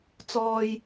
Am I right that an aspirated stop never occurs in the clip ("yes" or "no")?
yes